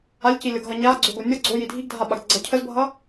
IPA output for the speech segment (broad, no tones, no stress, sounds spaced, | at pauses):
a lʲ c i lʲ ʌ ɡ ɦ ʌ ɲ a ɡ͡ǀ o ɡ o nʲ ʌ ɡ͡ǀ o j i dʱ i ɡ dʱ a ɓ a ɡ ɡ͡ǀ ʌ cʰ ə z bʱ ʌ